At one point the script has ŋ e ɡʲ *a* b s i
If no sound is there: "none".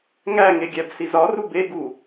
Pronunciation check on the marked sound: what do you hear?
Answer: æ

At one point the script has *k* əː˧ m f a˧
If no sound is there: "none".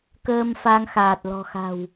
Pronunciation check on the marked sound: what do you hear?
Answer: k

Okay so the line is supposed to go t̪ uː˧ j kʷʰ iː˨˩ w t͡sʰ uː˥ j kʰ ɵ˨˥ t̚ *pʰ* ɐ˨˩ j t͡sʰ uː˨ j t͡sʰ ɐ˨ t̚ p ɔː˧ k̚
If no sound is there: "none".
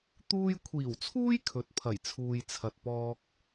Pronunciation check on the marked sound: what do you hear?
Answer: pʰ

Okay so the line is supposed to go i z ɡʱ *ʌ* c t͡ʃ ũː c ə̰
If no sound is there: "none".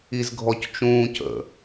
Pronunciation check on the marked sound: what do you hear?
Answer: ɔ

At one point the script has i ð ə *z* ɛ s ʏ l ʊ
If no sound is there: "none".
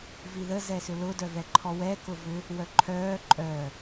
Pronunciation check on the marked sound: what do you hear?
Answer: z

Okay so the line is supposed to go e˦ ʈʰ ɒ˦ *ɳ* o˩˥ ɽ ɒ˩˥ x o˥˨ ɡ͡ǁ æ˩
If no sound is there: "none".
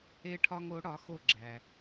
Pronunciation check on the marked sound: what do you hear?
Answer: ŋ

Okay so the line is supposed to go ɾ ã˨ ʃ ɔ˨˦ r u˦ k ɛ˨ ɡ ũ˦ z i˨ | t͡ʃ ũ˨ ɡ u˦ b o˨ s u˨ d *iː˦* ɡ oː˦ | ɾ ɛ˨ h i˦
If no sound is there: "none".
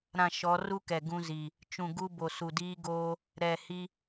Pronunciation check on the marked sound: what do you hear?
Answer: iː˦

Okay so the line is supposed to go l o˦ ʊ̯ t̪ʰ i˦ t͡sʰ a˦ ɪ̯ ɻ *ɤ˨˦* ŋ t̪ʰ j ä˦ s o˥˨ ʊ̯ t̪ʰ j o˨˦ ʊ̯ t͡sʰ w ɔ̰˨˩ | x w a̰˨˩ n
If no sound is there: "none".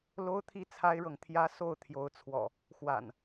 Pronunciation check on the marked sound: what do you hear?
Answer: ɤ˨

